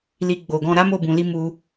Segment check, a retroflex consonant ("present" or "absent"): absent